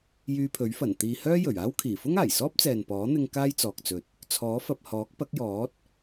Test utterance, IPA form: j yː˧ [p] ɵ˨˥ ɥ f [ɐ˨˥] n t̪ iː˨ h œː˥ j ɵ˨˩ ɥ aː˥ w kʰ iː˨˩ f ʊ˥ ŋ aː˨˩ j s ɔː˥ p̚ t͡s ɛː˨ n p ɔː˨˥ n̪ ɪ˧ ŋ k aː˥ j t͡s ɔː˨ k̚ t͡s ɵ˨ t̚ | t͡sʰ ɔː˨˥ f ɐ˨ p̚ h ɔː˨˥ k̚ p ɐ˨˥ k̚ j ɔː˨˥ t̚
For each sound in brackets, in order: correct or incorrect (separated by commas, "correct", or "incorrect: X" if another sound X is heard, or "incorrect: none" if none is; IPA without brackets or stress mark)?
incorrect: pʰ, incorrect: ɐ˨˩